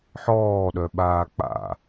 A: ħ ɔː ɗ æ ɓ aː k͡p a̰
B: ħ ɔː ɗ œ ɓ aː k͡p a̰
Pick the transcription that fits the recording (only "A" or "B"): B